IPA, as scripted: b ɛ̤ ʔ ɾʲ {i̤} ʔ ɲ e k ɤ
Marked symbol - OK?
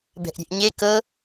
no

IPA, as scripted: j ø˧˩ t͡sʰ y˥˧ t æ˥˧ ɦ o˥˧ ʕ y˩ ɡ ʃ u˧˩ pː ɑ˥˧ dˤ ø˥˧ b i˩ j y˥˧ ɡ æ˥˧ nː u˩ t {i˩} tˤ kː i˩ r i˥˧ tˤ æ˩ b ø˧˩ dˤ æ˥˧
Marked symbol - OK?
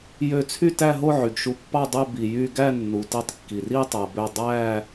no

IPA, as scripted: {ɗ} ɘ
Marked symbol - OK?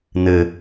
no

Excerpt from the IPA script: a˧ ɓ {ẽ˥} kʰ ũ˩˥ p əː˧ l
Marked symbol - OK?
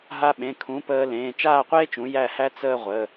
no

